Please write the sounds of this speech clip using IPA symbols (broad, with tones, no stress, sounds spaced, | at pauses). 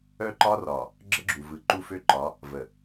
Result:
œ˦ ǃ ɒ˦ r ɒ˨ | ɡ͡ǁ ə˦ ɡ͡ǁ u˨ v ɯ˨˦ ǃ u˦ f ø˦ ǃ ɒ˨˦ | v ə˨